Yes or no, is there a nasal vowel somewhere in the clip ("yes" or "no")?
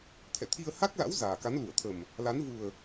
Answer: no